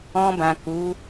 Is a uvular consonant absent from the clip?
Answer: yes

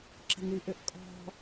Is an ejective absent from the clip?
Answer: no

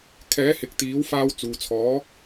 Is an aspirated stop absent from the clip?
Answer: no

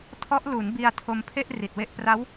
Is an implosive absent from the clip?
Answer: yes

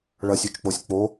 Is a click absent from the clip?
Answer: yes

